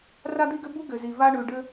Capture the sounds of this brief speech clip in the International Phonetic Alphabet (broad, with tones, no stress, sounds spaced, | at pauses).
r a˥ d̪ i˥ ɡ ʏ˥ b u˥ ɡ ʏ˩ z i˩ v a˥ ɳ ʉ˩ ɖ ɘ˥